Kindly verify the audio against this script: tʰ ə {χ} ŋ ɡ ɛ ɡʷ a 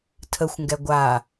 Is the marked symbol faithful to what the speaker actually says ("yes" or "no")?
no